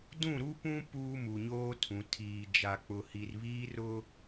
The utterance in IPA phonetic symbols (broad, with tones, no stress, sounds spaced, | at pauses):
d ũ˦˨ ɾ u˦ p ũ˦ p uː˦ m u˨ ɲ oː˦ tʰ ũ˨ tʰ iː˨ d͡ʒ a˨ k͡p ʊ˨ h i˨ r β iː˦ r ʊ˦